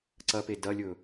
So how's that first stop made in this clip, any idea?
click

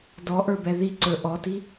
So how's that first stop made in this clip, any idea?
plain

